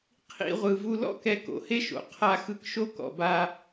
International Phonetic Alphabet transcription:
qʰ ḭ˧ ʁʷ ɯ˩ v u˧ l ɔ̰˥ k ɛ˧ k o̰˩ h e˥ ʃ o̰˩ qʰ a˧ x ɯ˧ k ʃ o˥ k ɔ̰˩ b a˧

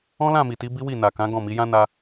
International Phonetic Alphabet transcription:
ɔ̃˦ l ã˦˨ m i˨ t i˨˦ b i˦ w i˦˨ n a˨ k ã˨˦ ɡ ɔ̃˦˨ m i˨˦ j ã˦ n a˧

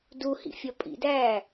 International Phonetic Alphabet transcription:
d u h ḭ fʲ ɒ pʼ ḭ d æː

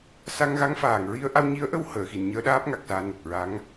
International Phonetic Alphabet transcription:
s a˧ ŋ ɣ a˧˥ ŋ f aː˨˩ ŋ ɹ i˧ ə̯ ʔ a˧ w ɲ i˧˥ ə̯ ʔ ə˧ w h əː˨˩˨ x i˨˩˨ n ɲ əː˧˥ ɗ aː˦˥ p̚ ŋ a˨˩ k̚ s aː˧ n ə˨˩ k̚ ɹ a˧˥ ŋ

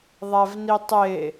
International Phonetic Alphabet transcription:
ðˤ æ v n i tˤ e

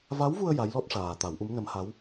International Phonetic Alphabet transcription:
v a˧˥ w v u˧ ə̯ j a˧˥ j l ɔ˦˥ t̚ ʂ aː˨˩ t̪ a˨˩˦ w ʔ u˧˥ m n ə˧˥ m h a˧˥ w

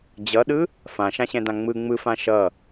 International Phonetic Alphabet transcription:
d͡ʑ ʌ ɗ ɯ | f ã ʃ ã ɕ ɛ̃ d ã ŋ͡m ɯ ŋ͡m ɯ f ã ʃ ʌ

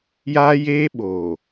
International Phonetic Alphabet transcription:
j aː˦ j eː˦ ɓ oː˨

